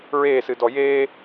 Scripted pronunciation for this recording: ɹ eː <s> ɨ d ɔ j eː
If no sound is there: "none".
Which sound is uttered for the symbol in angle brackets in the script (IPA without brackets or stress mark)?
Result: s